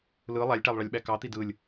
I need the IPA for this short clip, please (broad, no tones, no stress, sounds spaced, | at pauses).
l ɯ lˠ æ lʲ ʈ æ lˠ ɭ ɑ lʲ ɓ æ k ɑ t̪ i d ɯ lʲ